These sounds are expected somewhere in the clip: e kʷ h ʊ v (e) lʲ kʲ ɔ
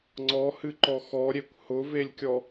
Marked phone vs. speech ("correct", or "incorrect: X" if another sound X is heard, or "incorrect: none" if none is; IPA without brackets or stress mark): correct